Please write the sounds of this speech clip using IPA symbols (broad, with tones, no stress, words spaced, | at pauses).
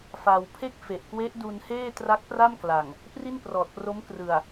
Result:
fa˧w pʰe˥˩k̚fe˨˩ʔkwe˦˥ʔ du˧nheː˥˩ tra˦˥k̚pra˥˩mkla˨˩ŋ | pri˥˩nprɔː˨˩t̚pro˦˥m krɯ˨˩a̯